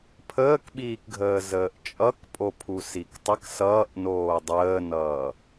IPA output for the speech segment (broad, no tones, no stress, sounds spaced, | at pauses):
pʰ əː k ɓ iː k ɡʱ əː z əː ʔ t͡ʃʼ ʌ k pʼ o pʰ u s i k tˤ ə k s ʌː ʔ n oː dˤ əː n ʌː